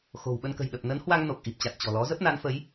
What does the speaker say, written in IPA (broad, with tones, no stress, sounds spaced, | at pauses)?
x o̤˨˩ w ɓ ə˧ n k ə̤˨˩ j ɗ ə˨˩ p̚ n ə˨˦ n h w a˧ ŋ n o˨˩ k̚ ʔ i˨˩ p̚ t͡ɕ a˨˩ t̚ t͡ɕ ɔ̤˨˩ l ɔ˨˦ z ə˦˥ p̚ n a˨˦ n f ə˨˦ j